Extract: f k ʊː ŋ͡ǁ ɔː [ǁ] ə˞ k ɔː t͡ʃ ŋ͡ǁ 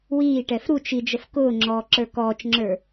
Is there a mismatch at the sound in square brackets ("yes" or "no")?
no